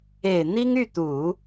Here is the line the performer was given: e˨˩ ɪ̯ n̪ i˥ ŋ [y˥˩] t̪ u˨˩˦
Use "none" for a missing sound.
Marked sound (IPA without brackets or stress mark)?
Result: y˥˩